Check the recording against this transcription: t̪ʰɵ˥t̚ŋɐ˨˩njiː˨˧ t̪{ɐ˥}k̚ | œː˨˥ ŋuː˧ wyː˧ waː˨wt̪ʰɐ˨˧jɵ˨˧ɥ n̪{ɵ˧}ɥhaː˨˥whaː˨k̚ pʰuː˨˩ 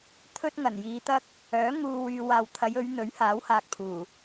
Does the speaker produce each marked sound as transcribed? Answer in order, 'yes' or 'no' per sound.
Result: yes, no

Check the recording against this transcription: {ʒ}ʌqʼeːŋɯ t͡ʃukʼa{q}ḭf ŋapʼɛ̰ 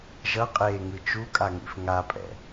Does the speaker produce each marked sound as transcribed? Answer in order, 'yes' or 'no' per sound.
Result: yes, no

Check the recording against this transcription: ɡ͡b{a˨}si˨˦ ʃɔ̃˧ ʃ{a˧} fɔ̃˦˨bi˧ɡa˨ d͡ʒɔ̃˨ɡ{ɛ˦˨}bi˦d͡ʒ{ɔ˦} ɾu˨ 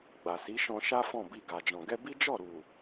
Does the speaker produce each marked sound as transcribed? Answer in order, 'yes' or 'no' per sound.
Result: yes, no, no, no

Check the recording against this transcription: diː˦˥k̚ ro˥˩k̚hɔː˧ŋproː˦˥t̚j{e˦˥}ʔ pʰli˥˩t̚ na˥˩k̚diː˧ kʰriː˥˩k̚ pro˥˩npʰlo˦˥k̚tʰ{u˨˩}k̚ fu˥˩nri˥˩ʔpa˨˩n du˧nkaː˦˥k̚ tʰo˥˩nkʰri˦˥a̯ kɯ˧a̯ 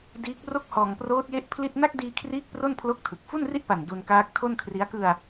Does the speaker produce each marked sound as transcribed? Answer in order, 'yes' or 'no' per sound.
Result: yes, no

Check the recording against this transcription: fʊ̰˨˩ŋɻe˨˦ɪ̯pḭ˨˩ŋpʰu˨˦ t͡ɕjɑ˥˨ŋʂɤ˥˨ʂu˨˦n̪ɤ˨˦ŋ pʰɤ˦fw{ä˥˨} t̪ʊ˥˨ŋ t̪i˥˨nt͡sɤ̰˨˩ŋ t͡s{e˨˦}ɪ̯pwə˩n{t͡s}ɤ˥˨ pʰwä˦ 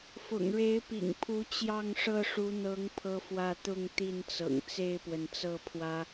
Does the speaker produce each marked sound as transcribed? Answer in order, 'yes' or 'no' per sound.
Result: yes, no, yes

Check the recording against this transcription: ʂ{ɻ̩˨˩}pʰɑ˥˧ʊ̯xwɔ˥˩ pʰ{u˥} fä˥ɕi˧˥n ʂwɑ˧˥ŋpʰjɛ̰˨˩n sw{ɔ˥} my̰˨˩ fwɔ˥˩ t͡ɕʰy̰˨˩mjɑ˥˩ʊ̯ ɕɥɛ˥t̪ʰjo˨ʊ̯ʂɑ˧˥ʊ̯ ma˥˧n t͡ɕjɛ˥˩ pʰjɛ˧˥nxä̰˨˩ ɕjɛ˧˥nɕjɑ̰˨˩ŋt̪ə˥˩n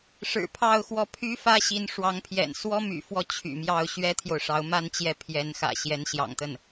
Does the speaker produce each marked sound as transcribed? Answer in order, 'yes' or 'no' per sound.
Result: yes, no, yes

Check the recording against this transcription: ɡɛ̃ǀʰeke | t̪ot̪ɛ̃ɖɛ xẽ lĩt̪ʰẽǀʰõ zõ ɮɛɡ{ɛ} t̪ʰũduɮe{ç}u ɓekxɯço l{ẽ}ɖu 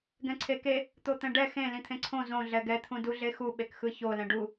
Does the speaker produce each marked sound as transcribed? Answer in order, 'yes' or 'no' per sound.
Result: yes, no, no

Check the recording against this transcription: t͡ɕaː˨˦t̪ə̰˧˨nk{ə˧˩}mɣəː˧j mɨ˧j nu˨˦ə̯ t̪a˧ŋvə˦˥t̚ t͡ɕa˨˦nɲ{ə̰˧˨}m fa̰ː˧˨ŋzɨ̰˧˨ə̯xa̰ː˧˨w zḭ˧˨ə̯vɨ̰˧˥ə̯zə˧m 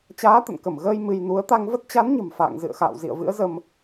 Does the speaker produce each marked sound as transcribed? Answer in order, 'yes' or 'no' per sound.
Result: yes, no

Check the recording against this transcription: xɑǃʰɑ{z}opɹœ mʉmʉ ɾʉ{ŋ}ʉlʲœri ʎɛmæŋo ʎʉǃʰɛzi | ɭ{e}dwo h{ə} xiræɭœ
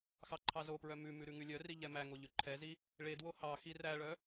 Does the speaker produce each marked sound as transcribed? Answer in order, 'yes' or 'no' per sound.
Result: yes, yes, yes, no

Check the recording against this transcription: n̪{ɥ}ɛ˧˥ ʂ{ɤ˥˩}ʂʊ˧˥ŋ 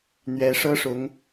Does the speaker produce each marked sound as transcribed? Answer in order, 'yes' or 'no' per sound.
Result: yes, no

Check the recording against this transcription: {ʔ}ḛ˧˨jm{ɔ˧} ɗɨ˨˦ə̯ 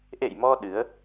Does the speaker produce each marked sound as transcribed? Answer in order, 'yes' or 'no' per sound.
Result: yes, yes

